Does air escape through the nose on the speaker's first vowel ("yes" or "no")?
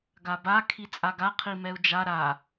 no